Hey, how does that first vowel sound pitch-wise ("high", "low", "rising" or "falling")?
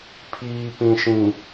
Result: low